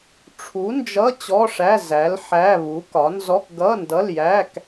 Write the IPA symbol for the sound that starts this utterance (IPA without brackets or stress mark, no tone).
ʈ͡ʂʰ